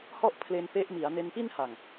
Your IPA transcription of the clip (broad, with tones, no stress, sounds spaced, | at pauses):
h ɔ˥˩ ʔ pʰ l e˧ n p e˦˥ ʔ m i˩˦ a̯ n e˧ n p i˥˩ n h a˨˩ ŋ